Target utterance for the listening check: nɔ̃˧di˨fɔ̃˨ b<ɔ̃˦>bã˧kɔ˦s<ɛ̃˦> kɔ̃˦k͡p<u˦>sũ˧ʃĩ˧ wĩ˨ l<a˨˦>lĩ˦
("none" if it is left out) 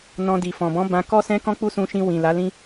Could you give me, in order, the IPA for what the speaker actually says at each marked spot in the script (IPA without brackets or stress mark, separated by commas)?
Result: ɔ̃˨˦, ɛ̃˦, u˦, a˨˦